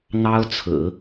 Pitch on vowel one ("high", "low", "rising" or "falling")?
high